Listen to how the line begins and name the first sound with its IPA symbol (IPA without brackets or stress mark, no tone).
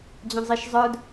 d͡ʑ